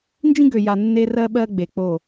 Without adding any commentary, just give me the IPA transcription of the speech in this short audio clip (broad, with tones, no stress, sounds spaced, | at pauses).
n d͡ʒ ĩ˦ ɡ ø˨ j a˨ nː e˦ r ɜ˦ ɓ ɜ˦ ɡ͡b e˨ k͡p o˦˨